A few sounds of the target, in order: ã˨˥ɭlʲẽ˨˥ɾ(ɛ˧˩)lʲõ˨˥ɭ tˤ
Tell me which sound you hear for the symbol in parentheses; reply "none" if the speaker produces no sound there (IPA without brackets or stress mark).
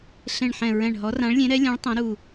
ɛ˨˥